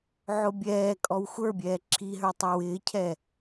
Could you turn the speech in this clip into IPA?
ʕʊbʲɛːkʼɔw xʷə˞bʲɛː ǁʰiɦə˞ tˤɑwɪːcʰɛ

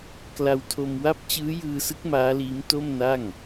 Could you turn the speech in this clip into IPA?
kla˧wtʰo˧mwa˥˩p̚ t͡ɕɯː˦˥jɯː˧sɯ˦˥k̚ maː˦˥liː˦˥m to˥˩m na˥˩ŋ

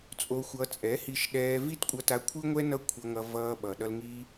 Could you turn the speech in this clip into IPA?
t͡sʼo˧xʷʌ˧ t͡sʼɛ˨˦hi˧ʃ ɗɛː˧vi˦tkʷʼʌ˧ta˧ kʷʰɯ˦ŋʷɛ˦ nʌ˦kʷʰʌ˧ŋʌ˧ vʌː˧ɓʌ˨ ɗʌ˧lŋiː˧

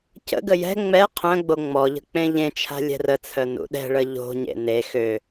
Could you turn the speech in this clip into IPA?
cə̰ɡə jɛ̤ ŋ͡mɛ qʰœ̃ɡ͡bo ŋ͡mɔʎə̤ k͡pẽʎẽt͡ʃʰa̤ lʲɛ̤rət͡sʰœ nṵɗɛ̤ɭə ʎo̤ɲḛ ne xø

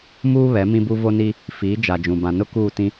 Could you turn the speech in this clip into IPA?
muː˦βɛ˨˦ mĩ˦bu˦vo˦ni˦ | fiː˨˦d͡ʒa˨d͡ʒũ˨ bã˨nʊ˦ kuː˦˨tĩ˦

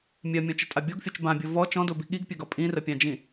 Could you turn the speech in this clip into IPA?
mʲɜmʲɔ̃t͡ʃɘtʼa bʲɔɡfʲɔt͡ʃ bãbʲo vɔ t͡ʃɔ̃dobi ɠiɡpʲɘɡɒ pʼĩrəpʲãd͡ʒĩ

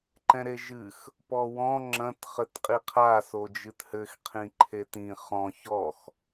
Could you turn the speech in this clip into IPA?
ǃɛ̃ɾeʒɨx | pɔwɔ̃ ŋ͡ǁɐ̃t χɘtqʼiqʰa sod͡ʒɨthɘx qʰĩǃʰetĩ χɔ̃ çɔx

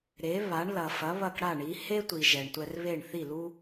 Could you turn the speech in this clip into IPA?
ɾe˩˥βa˩˥ɳ lɐ˩fɐ˩˥ βɐ˥˩kɽa˥˩ɳi˩˥ he˥tʷi˩ ʒɛ˩ɳtʷɛ˧rβe˥˩ɳ θi˥˩lu˥

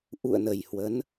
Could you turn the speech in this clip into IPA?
ʔṵ˧˨ə̯nə˨˩j hwə˨˦n

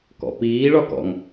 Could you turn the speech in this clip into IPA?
kɔ̰piː ɭɒkɔ̰ŋ

